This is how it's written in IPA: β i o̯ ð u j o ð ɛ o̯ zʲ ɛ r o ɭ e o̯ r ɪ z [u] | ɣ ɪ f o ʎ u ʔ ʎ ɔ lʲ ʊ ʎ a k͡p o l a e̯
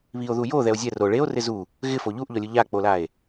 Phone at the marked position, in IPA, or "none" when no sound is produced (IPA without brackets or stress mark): u